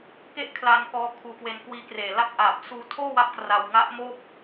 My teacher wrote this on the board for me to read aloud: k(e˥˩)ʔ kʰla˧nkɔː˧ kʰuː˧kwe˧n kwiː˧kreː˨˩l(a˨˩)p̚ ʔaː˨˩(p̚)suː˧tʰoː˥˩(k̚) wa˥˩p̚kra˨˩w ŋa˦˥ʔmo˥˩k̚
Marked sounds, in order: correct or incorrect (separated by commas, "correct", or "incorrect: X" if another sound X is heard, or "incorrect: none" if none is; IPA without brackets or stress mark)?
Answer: correct, incorrect: a˥˩, correct, incorrect: none